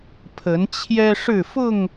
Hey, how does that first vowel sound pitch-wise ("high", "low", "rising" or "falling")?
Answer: rising